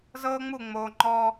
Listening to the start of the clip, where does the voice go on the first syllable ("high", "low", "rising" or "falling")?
high